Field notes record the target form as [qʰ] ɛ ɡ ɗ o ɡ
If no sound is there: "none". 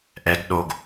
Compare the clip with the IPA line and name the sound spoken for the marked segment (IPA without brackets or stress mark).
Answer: ʔ